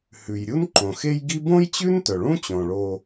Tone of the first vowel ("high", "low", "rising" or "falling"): low